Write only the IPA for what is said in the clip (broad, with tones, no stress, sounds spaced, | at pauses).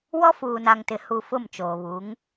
w ɔ˦ f uː˨ n a˨ ŋ t ɪ˨˦ h u˨ f ʊ˦˨ m t͡ʃ oː˨ β u˨˦ ŋ